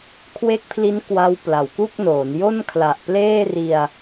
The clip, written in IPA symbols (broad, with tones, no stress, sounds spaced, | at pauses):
kʰ w e˦˥ k̚ pʰ l i˦˥ n k w a˦˥ w p l a˨˩ w k u˥˩ k̚ n oː˩˦ n j o˥˩ n kʰ l a˨˩ ʔ p l eː˥˩ r i˧ a̯